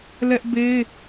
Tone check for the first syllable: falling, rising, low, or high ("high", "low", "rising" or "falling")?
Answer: high